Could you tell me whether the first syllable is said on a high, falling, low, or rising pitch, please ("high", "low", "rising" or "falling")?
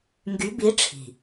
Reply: rising